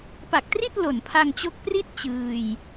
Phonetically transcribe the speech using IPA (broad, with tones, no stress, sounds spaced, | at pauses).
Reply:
p a˨˩ k̚ t r i˥˩ t̚ l o˨˩ n pʰ a˧ ŋ t͡ɕ o˦˥ k̚ p r i˥˩ t̚ t͡ɕ ɯː˧ j